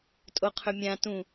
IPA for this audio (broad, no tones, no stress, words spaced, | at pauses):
tʼoqʰɵmʲã tũ